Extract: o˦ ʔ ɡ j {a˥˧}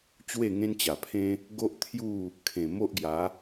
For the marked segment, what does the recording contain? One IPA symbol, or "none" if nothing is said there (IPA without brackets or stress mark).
a˨˦